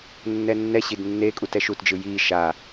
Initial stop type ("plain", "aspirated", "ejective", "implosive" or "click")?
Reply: plain